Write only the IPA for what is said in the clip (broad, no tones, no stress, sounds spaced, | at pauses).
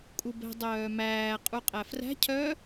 kʼ u b ɛ̤ dˤ œː m æː qʼ u qʼ æ f r æ̤ cʰ œː